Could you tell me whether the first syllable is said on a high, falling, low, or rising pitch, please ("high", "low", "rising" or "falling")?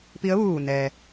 rising